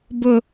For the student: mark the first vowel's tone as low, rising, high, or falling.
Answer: high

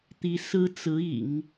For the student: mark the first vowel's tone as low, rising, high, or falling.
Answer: rising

